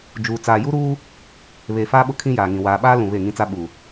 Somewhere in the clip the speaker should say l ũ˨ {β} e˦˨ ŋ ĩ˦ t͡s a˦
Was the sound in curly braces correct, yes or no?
yes